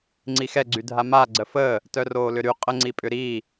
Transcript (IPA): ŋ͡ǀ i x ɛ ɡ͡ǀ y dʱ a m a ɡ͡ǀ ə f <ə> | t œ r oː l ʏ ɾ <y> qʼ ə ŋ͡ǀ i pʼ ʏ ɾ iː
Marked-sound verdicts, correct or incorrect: incorrect: əː, correct

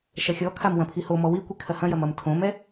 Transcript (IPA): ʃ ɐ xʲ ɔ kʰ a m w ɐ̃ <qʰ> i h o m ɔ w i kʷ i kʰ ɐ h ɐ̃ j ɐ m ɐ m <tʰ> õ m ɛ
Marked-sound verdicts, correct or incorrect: incorrect: pʰ, correct

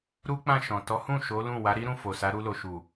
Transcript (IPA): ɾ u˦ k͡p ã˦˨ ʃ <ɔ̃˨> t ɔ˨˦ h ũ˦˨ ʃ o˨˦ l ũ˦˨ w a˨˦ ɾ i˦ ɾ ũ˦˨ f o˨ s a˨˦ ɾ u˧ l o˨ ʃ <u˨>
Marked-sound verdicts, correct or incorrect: correct, correct

